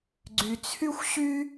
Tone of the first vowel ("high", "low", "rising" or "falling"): low